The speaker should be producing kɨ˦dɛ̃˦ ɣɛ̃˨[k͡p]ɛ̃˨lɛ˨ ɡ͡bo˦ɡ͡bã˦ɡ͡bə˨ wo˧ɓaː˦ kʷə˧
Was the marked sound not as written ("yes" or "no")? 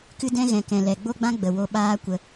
yes